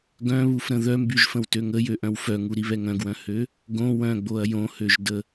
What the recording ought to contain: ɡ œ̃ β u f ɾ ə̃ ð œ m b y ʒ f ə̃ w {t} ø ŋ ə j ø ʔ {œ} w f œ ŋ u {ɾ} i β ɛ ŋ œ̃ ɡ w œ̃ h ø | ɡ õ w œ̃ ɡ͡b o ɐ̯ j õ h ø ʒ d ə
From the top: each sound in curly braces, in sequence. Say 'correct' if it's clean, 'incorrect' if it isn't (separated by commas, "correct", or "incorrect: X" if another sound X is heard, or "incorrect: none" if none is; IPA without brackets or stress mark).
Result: correct, incorrect: œ̃, correct